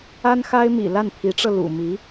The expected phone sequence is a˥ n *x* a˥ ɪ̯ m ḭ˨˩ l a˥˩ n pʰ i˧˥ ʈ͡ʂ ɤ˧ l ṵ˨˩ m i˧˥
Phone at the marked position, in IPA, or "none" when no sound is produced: x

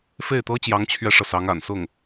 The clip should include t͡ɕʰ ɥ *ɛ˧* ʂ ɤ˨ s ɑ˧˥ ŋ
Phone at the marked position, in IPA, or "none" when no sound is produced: ɛ˥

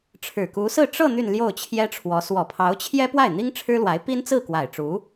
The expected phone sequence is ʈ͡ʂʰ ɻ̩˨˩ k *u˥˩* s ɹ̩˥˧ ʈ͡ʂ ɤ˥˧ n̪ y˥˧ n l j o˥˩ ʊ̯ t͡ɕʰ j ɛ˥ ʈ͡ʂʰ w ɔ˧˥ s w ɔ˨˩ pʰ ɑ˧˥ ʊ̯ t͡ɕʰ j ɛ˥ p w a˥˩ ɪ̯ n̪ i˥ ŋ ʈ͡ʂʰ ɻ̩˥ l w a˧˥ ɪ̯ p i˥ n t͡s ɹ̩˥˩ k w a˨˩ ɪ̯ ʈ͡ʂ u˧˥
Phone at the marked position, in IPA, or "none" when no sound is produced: u˧˥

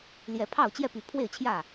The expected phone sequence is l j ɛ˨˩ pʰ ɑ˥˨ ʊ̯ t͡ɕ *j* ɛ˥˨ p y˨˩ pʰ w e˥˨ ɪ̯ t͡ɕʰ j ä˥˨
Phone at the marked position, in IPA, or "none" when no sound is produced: j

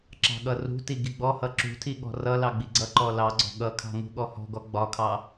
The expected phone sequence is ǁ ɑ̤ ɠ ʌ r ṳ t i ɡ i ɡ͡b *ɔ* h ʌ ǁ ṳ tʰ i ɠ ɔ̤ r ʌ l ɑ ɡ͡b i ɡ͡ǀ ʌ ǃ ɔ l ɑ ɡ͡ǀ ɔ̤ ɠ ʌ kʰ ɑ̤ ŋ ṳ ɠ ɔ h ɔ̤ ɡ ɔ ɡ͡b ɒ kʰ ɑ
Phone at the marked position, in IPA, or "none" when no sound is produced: ɔ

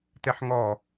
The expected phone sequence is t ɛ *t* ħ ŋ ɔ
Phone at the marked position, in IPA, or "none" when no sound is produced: none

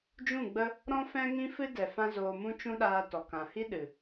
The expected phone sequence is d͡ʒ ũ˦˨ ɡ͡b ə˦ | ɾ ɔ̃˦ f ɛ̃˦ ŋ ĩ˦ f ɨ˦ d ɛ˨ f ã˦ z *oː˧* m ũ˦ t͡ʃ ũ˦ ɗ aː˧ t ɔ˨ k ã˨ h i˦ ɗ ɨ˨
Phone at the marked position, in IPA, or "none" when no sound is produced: oː˧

